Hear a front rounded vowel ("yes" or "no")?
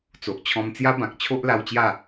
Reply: no